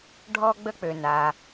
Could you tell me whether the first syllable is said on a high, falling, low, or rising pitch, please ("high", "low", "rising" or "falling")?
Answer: high